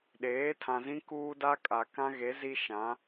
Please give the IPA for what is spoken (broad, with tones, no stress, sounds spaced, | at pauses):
ɗ eː˨˦ tʰ ã˨ z ĩ˦ k uː˦ d a˦ kʼ a˨ k ã˦ ɣ e˨˦ z i˦ ʃ ã˨˦